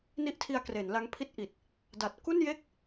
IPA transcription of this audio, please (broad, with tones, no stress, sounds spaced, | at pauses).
n i˦˥ ʔ tʰ i˧ a̯ k r e˩˦ n l a˦˥ ŋ pʰ i˥˩ t̚ ʔ i˨˩ t̚ | d a˨˩ t̚ k u˥˩ n j e˥˩ k̚